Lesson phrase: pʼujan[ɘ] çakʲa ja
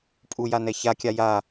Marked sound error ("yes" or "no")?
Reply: yes